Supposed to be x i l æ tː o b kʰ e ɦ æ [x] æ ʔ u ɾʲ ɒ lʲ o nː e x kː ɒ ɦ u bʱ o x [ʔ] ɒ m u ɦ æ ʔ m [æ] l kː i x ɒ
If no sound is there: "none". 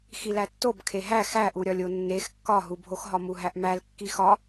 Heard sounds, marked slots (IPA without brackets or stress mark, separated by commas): x, ɦ, æ